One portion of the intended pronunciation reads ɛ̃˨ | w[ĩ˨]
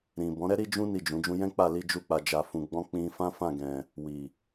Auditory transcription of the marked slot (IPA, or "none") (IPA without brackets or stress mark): i˨